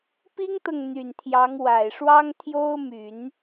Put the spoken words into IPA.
p i˥ ŋ t̪ ɤ˨ ŋ n̪ y˨˩ n t̪ʰ j ɑ˧˥ ŋ w a˨˩ ɪ̯ ʂ w ɑ˥ ŋ t̪ʰ j o˥ ʊ̯ m y˨˩˦ n

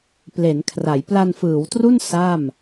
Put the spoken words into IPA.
p l e˩˦ n kʰ r a˩˦ j p l a˧ n f ɯː˩˦ w t r u˥˩ n s a˥˩ m

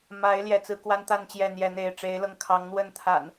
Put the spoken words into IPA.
m a˨˦ ɪ̯ l j ɛ˨˦ t͡s ɹ̩˨˦ k w a˦ n t̪ a˥˨ n t͡ɕ j ɛ˥˨ n̪ j ɛ˦ n̪ e˥˨ ɪ̯ ʈ͡ʂ e˨˦ ɪ̯ l ɤ˧ ŋ kʰ ɑ˨˦ ŋ n̪ w ə˥˨ n t̪ʰ a̰˨˩ n

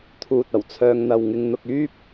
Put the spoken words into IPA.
t̪ʰ uː˨ t̚ ɐ˨˩ w t͡sʰ œː˧ ŋ n̪ ɐ˨ w ŋ ɪ˧ ŋ n̪ ʊ˧ k̚ yː˥ p̚

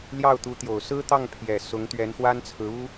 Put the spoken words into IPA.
l j ɑ˥˩ ʊ̯ t̪ u˧˥ t̪ j o˨˩ ʊ̯ s ɹ̩˥ t̪ ɑ˥˩ ŋ pʰ j ɛ˨˩ s ʊ˧˥ ŋ t̪ ɥ ɛ˧˥ n x w a˥ n t͡sʰ ɹ̩˧˥ u˥

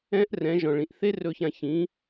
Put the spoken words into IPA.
ɛ̃˦ ʔ r ɛ̃˨˦ ʒ ɔ̃˨ ɭ ĩ˨ ʔ θ e˦ r ɵ˧ ç ã˧ ç ĩ˨˦

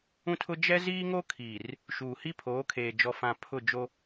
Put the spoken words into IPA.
ũ˦ tʰ ʊ˦ d͡ʒ ɛ˦ z iː˦ ŋ o˦ kʰ iː˨ r | ʃ uː˨ h i˦ pʰ oː˨˦ kʰ eː˨ d͡ʒ ɔ˨ f ã˨ pʰ ʊ˦˨ d͡ʒ o˦

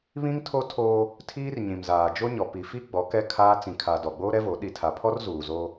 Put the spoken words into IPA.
β ĩ˦ ŋ tʰ o˦ tʰ o˦ | tʰ iː˦ r ɲ ĩ˨ m z aː˨ d͡ʒ o˦ ɲ ɔ˨ p i˨ f i˦ ɡ͡b ɔ˨˦ k ɛ˦ kʰ aː˦ t͡s ĩ˨ kʰ a˨ d ɔ˨ ɡ͡b oː˦ ɾ ɛ˦ v o˨˦ ɗ i˨ tʰ a˨ pʰ ɔ˦ r z uː˨ z o˦

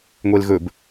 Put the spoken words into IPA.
ŋʷ e l ɣ ɵ b

